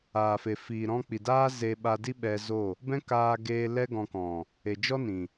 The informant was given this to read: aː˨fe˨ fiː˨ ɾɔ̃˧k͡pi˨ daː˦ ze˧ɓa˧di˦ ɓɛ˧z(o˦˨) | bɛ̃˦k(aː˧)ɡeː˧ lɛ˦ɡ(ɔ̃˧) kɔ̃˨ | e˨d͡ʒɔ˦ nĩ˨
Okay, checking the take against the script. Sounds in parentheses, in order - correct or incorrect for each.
correct, correct, correct

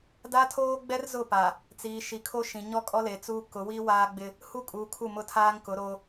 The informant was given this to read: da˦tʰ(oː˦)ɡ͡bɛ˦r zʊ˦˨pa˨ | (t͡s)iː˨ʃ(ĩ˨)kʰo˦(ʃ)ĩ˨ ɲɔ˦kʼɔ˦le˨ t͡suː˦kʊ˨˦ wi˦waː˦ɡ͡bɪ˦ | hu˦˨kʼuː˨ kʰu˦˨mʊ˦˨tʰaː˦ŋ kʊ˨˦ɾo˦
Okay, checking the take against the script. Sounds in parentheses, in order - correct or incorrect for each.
correct, correct, incorrect: i˨, correct

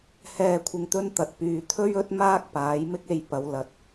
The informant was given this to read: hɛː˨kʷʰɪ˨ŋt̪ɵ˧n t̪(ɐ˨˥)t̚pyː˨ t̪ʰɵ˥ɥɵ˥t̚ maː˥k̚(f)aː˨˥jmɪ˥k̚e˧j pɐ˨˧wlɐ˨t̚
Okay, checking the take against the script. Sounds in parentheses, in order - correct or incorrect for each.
incorrect: ɐ˨, incorrect: p

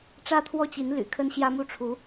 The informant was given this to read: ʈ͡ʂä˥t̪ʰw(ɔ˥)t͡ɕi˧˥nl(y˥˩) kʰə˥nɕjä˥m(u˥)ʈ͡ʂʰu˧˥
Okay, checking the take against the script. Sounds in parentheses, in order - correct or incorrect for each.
incorrect: ɔ˥˩, incorrect: y̰˨˩, correct

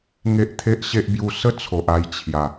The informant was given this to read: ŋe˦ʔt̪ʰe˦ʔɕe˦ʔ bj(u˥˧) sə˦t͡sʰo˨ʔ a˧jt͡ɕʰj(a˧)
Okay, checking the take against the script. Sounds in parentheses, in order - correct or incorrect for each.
incorrect: u˧, incorrect: a˨˩

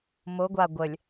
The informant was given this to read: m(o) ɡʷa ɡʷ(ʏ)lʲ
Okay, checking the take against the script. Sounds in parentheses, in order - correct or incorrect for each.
correct, incorrect: ə

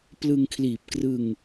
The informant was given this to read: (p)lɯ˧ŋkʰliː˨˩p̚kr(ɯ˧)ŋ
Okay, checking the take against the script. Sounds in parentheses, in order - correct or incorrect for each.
correct, correct

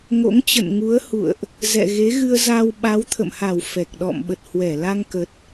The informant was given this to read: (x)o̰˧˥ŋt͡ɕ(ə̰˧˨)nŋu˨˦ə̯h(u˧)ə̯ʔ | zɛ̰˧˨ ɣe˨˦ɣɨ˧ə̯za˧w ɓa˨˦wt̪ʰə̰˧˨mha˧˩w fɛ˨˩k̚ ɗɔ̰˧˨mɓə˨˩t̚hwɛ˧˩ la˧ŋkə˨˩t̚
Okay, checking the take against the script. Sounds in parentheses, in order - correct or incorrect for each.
incorrect: ŋ, correct, incorrect: ṵ˧˨

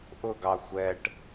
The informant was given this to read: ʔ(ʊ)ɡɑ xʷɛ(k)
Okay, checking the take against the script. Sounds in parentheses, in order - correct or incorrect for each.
correct, incorrect: ʈ

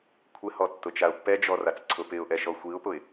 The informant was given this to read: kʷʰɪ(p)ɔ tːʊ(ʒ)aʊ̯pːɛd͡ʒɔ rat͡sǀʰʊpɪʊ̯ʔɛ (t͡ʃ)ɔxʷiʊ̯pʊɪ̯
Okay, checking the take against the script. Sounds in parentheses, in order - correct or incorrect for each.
incorrect: h, incorrect: t͡ʃ, incorrect: ʃ

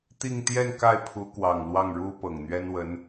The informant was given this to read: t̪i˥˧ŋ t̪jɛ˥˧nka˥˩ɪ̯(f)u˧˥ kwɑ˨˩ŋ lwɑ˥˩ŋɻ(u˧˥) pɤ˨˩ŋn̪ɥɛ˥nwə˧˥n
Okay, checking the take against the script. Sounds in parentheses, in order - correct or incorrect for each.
incorrect: pʰ, incorrect: u˥

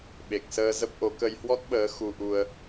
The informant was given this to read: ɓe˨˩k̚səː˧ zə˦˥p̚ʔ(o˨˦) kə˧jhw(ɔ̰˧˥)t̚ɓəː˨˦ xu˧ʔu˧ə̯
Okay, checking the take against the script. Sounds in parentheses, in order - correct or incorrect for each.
correct, incorrect: ɔ˦˥

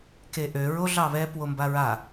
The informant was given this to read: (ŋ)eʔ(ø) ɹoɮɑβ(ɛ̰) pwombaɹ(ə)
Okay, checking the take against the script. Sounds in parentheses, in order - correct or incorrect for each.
incorrect: k, correct, incorrect: ɛ, incorrect: a

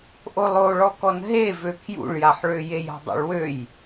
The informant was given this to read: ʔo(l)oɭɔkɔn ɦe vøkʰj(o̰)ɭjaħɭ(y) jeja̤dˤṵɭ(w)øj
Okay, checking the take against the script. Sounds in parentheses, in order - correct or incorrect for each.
incorrect: lˠ, incorrect: ṵ, incorrect: ø, correct

